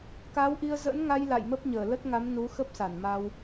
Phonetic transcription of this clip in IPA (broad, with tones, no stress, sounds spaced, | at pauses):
k aː˨˦ w ʔ i˧ ə̯ z ə̰ː˧˥ n ŋ a˧ j l a̰˧˨ j m ə˦˥ p̚ ɲ əː˧˩ l ə˦˥ t̚ ŋ a˨˦ m n u˨˦ x ə˦˥ p̚ s a˧˩ n m a˧ w